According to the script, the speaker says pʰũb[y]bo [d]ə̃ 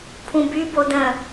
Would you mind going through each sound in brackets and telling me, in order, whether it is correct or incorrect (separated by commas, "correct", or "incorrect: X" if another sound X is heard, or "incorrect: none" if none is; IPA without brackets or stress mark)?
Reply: correct, correct